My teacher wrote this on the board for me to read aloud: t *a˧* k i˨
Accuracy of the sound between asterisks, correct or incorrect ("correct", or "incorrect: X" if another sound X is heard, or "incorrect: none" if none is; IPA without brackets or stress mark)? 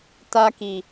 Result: correct